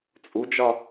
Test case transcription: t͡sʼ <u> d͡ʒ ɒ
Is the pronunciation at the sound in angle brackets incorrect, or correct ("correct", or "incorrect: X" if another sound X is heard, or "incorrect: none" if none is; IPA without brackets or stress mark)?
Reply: correct